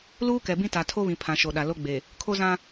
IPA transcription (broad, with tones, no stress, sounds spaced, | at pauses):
l uː˦ k ɛ˨ b ĩ˦ t a˨ tʰ o˦ β ĩ˨ pʰ ã˨ ʃ o˨ ɗ a˨ l o˦ ɡ͡b e˨ | kʰ o˦ z ã˦